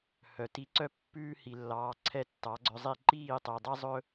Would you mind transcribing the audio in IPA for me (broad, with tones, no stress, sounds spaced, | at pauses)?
h œ˩ t i˧ ǀ œ˥ pː ʉː˥ h i˩ lː ɑː˩˥ ǀʰ ɛ˥˩ tː ɑ˩˥ ɡ͡ǀ œ˧ zˤ i˥˩ ǃ iː˥˩ tˤ e˩ dˤ ɛ˥ zˤ ɵ˥